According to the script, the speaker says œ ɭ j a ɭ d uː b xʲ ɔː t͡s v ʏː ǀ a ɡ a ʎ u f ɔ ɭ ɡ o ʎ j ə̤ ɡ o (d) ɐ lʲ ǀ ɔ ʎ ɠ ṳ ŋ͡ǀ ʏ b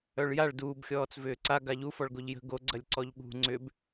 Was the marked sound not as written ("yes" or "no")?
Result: yes